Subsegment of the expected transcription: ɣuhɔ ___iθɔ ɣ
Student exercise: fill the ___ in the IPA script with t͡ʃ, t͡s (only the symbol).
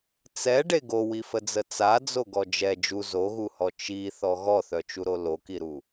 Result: t͡ʃ